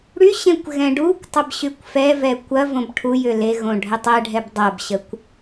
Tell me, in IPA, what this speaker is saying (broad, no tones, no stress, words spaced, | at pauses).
ɽyɕẽkʷ ɣɛ̃ɖukʷtˤəb ɕykʷfɛvɛ kʷɐ võbʈʰujʏ leɣõ ɖʱətˤɛɖʱɛb dˤɐbɕəkʷ